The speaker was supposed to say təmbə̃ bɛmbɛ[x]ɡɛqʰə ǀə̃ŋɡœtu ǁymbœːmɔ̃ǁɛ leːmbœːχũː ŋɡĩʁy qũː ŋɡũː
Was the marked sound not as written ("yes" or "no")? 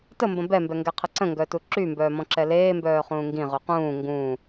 yes